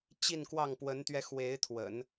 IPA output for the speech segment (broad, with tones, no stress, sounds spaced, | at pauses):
t͡ɕ i˥˧ n k w ɑ˥˩ ŋ p w ə˧˥ n t̪ ɥ ɛ˧ x w e˧˥ ɪ̯ t̪ʰ w ə̰˨˩˦ n